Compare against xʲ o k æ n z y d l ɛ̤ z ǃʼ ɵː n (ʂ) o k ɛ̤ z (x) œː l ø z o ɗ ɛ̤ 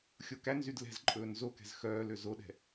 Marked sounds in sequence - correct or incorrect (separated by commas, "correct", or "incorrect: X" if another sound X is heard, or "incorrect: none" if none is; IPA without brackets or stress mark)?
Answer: incorrect: z, correct